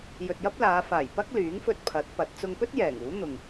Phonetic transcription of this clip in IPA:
jɵ˨t̚jɐ˥p̚laː˨˧ faː˨˩jpɐ˥k̚ lyː˨˥ŋfɵ˧t̚ pʰɐ˨˥t̚pɐ˨˥t̚ t͡sʊ˧ŋpɵ˥t̚ jɛː˨˩ŋuː˨˥n̪ʊ˨ŋ

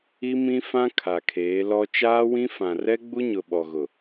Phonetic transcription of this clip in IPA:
i˦mĩ˦fã˦ kʰa˨kʰeː˨˦lɔ˦ t͡ʃaː˦wĩ˦fã˨ rɛ˦ɡ͡bu˦ɲʊ˨ ɓɔ˨ɣʊ˨

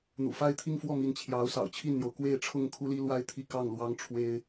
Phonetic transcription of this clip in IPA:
n̪ṵ˨˩fa˥˧ɪ̯t̪ʰi˥˧ŋ fwɔ˥˩mi˧˥n t͡ɕʰjɑ˧˥ʊ̯sɑ̰˨˩ʊ̯t͡ɕʰi˥˩nn̪jo˩ʊ̯ kwe˥˧ɪ̯ʈ͡ʂʰʊ˥˩ŋ kʰu˥li˥lwa˥ɪ̯ t̪ʰi˥˧kɑ˥˩ŋlwɑ˥ŋʈ͡ʂʰwe˥ɪ̯

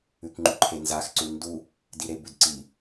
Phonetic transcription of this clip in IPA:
ʉkŋ͡ǃʉǃʰenzax ǀʉndu | diɾebʉdǀi

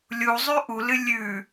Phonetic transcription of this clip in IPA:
lʲu zˤʉʔulɨ lʲʉ

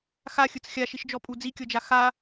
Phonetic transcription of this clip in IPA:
xaxʲɯt͡s xʲaʃiʃd͡ʒɔpʼu d͡zikʲɤd͡ʒa xa

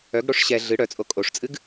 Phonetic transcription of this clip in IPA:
œɡɽoʂ ɕɛ ɮɨ ɽœt͡sʼo kʼoʂt͡sʼɨɡ

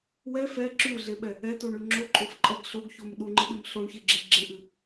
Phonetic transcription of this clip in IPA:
wɛ fɛ ǁʉɮeɓɛ | ɛtoɳʉ ŋ͡ǁoǃʼofǃʼɛɡ ɬoɡçom ɗuŋ͡ǃɨɗɨm ɬoɳçeɡ͡ǁe ɡ͡ǁeʔɨ

